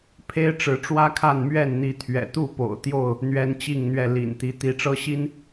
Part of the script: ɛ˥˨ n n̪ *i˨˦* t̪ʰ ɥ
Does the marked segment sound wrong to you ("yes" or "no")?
no